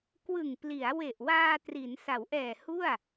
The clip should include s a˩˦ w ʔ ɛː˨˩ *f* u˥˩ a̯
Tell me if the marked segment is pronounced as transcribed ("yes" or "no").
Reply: no